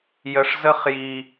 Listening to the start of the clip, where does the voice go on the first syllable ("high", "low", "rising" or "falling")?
low